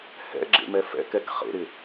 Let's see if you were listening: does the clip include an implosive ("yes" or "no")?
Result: no